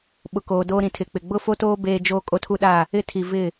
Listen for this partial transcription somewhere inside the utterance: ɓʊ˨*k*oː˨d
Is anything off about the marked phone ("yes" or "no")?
no